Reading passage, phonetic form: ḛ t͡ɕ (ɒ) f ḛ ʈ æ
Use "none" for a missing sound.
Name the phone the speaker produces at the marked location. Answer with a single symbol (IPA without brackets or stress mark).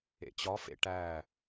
ɒ